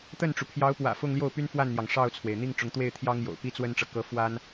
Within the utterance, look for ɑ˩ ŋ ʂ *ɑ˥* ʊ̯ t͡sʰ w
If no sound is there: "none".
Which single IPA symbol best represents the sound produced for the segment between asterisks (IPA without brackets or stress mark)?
ɑ˥˩